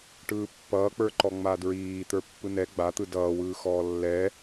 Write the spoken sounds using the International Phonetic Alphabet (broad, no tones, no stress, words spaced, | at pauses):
ʈɯːpːʌːk͡pə˞ǃɔ ŋ͡madɹiː t̪ə˞pːɯnɛ ɡ͡bat̪ɯ dʌːwɯː xɔːlːɛ